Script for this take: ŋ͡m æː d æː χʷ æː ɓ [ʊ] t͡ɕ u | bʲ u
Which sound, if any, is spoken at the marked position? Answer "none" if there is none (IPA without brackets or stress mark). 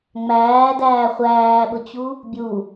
ʊ